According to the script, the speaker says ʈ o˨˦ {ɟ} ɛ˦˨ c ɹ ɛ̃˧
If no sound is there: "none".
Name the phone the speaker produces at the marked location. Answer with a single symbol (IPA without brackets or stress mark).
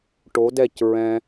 d